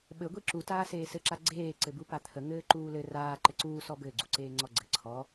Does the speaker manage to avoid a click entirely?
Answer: no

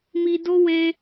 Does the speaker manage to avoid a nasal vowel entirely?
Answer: yes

